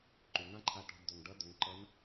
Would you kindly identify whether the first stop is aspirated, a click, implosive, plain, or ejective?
click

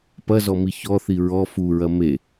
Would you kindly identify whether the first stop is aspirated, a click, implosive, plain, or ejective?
plain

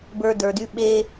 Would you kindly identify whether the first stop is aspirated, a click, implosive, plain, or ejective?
plain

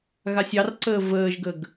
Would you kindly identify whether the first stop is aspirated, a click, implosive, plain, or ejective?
click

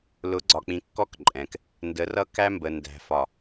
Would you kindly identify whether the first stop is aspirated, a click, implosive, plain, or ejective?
click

